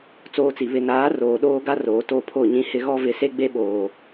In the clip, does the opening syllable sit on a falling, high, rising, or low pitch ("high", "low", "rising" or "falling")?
high